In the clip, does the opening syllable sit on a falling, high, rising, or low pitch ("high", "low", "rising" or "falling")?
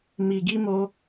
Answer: low